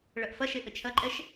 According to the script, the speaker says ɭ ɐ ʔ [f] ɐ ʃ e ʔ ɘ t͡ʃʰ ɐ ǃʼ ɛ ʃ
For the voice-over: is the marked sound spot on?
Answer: yes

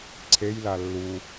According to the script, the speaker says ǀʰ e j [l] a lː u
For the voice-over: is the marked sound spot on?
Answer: yes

